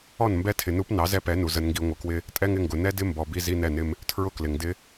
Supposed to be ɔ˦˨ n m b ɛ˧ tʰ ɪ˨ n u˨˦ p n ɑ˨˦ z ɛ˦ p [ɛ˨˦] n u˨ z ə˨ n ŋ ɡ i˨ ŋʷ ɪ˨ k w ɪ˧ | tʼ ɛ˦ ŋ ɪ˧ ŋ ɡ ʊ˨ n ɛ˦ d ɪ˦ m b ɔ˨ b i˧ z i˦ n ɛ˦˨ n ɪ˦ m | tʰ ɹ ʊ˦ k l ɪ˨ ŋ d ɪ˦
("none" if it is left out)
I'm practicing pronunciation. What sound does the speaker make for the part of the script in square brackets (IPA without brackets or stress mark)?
ɛ˨˦